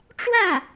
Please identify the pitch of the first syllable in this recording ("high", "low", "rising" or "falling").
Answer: falling